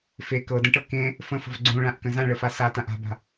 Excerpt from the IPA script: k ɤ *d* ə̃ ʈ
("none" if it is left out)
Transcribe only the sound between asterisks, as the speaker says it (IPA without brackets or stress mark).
d